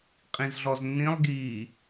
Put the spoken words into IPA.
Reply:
qʼ ĩ z ɮ ɔ z nː ĩ lˠ ɡ iː

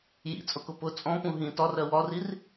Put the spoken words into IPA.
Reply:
j ḭ t͡sʼ ʊ k ʊ p ʊ t͡sʼ ɔ̃ p ũ ɦ ĩ t ɒ r ɜ w ɒ r i r

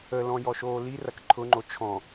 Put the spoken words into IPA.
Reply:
ə l ɔ̃ j ɔ ʃ oː l i r ɐ k ǃʰ ʊ ŋ͡ǃ o t͡ʃʰ ɔ̃

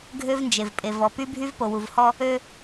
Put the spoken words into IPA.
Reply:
ɡʱ ø˦ v n d͡ʒ e˨ v pʼ e˨ v ɔ˨ p y˦ bʱ y˦ v p o˨ w u˨ v h ɔ˦ | ø˦

